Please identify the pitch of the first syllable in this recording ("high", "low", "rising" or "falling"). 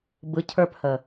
low